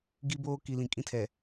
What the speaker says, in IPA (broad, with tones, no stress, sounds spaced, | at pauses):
ɡ i˦ b oː˦ k i˨ l ĩ˨ kʼ ĩ˦ tʰ ɛ˨